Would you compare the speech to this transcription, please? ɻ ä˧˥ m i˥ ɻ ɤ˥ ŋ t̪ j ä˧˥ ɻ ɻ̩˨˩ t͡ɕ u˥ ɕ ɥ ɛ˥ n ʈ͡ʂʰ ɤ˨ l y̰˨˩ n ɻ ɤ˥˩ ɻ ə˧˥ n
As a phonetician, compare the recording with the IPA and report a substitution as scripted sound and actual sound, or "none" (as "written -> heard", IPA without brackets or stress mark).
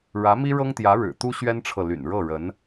t͡ɕ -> t̪